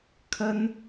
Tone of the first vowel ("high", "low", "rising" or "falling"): high